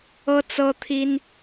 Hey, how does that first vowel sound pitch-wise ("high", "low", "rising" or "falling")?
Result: high